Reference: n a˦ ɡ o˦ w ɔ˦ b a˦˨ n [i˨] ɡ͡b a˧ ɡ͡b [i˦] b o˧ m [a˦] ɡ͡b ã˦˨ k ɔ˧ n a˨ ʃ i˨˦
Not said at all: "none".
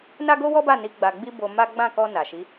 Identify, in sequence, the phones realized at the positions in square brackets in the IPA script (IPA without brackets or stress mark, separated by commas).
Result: i˨˦, i˦, a˦